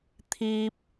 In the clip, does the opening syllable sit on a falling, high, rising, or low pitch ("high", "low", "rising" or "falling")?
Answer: high